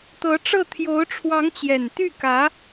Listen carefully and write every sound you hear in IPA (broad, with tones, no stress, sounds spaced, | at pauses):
t̪ ɤ˧˥ ʈ͡ʂ ɤ˥˩ t̪ʰ j o˧˥ ʊ̯ ʈ͡ʂʰ w ɑ˧˥ ŋ t͡ɕ j ɛ˨˩ n t̪ y˥˩ k ä˧˥